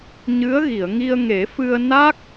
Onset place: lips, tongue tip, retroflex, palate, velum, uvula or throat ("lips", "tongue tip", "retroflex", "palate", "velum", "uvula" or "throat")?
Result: palate